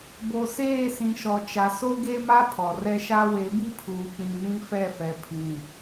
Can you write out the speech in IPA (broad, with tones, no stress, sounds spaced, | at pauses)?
b o˨ s eː˦˨ s ĩ˨ ʃ ɔ˨ t͡ʃ a˨ s o˦ ɡ e˦ m a˦ pʰ ɔ˨ r ɛ˦ ʃ a˦ w e˨˦ b i˦ pʰ uː˨ k͡p ĩ˨ n ĩ˦ f ɛ˦˨ f ɛ˨ pʰ ĩ˨